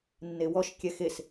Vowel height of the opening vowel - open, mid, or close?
mid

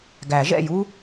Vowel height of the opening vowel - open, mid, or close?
open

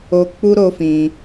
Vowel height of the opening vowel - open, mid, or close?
mid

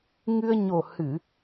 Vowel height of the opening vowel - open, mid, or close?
close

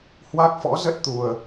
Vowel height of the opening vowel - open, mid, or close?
open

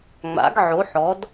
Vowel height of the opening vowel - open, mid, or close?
open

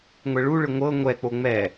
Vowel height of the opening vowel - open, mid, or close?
mid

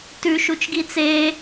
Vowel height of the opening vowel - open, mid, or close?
close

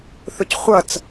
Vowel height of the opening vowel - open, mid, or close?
close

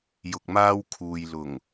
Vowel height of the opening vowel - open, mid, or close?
close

